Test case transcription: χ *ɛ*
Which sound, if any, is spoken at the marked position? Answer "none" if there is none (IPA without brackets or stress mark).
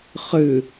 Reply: ɨ